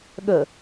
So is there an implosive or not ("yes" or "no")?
yes